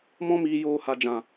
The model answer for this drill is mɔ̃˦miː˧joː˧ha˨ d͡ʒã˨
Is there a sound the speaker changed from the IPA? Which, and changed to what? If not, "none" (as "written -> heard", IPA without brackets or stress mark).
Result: none